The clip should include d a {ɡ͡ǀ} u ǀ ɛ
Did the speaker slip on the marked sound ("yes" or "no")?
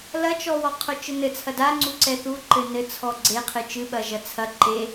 yes